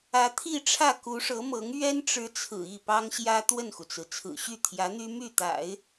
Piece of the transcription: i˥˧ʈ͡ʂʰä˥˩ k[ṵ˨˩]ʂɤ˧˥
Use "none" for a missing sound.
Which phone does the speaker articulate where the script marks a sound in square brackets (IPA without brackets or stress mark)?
u˧˥